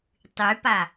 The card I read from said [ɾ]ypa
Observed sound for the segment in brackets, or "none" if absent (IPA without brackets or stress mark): tˤ